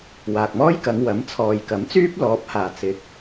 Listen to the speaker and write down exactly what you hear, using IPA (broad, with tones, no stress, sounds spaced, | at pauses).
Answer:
w aː˨ k̚ m ɔː˥ j k ɐ˨˧ ŋ w ɐ˨˥ m t͡sʰ ɔː˨ j k ɐ˨˥ m t͡s yː˥ p̚ l ɔː˨˥ p̚ h aː˨˩ t͡s ɪ˨˥ k̚